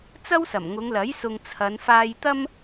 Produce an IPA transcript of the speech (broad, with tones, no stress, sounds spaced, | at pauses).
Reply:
t͡s ɐ˥ w s ɐ˨˩ m ŋ ʊ˨˧ ŋ l ɐ˨˥ j s ʊ˨ ŋ t͡sʰ ɐ˨˧ n f aː˧ j t̪ ɐ˥ m